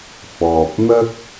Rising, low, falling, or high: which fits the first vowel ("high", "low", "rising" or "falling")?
low